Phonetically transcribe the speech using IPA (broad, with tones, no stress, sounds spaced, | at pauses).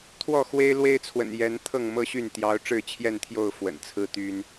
t̪ʰ w ɔ˥˨ x w e˦ ɪ̯ l w e˦ ɪ̯ t͡sʰ w ə̰˨˩ n j ɛ˨˦ n t̪ʰ ɤ˥˨ ŋ m ɤ˦ ɕ y˥˨ n t̪ j ɑ˨˦ ʊ̯ ʈ͡ʂ ɻ̩˥˨ t͡ɕʰ j ɛ˥˨ n t̪ʰ j o˥˨ ʊ̯ f w ə̰˨˩ n t͡sʰ ɹ̩˦ t̪ y˦ n